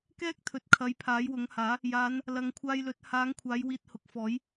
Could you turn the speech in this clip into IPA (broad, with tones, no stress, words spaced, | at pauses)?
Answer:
kɛː˥k̚t̪ʰɵ˨t̚kʰɐ˨˧j pʰaː˨˥jwʊ˨˥ŋhaː˨˥ | jaː˨˧n | lɐ˨ŋkʷʰaː˧jlɵ˨˥t̚ haː˨˧ŋkʷʰaː˨˧j wiː˧t̚hʊ˨k̚fɔː˨˥j